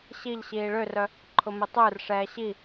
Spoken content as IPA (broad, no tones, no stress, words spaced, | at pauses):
ɕiʎɕiː ɭørœ | ǃʰʊmɪtˤʏːrʂɛː ɕi